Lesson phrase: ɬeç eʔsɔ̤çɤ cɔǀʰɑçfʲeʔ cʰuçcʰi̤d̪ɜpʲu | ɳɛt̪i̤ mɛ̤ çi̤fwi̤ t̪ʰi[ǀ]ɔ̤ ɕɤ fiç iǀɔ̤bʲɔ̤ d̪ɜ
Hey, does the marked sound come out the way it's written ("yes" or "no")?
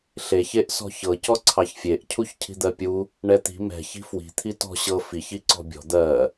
no